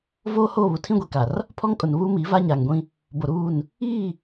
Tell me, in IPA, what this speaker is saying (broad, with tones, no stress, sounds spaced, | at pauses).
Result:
v oː˦ h oː˦˨ β u˨ tʰ ĩ˦ ɡʷ i˨ k a˨ r | pʰ ɔ˦ ŋ kʼ ʊ˨ n β uː˦ m iː˨˦ v a˦ ɲ aː˨ ŋ ɡʷ ĩ˦ | b o˨ ɾ uː˦˨ n | iː˦˨